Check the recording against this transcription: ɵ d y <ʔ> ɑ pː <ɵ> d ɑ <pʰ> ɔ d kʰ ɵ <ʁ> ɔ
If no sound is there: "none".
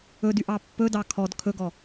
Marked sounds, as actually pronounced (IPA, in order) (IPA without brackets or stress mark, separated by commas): ʔ, ɵ, kʰ, ɡ